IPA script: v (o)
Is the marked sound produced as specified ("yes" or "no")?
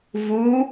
no